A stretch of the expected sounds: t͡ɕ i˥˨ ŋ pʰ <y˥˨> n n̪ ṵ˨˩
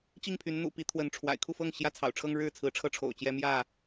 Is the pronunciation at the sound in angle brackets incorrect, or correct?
incorrect